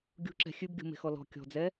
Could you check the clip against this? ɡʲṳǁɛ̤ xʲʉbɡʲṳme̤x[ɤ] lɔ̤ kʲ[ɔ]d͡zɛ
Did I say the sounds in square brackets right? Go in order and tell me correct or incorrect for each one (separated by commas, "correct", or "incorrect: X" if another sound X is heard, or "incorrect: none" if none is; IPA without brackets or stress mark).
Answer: incorrect: ɔ, incorrect: ɔ̤